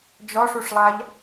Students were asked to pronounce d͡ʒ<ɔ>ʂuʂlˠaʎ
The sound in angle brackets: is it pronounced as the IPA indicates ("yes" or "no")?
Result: yes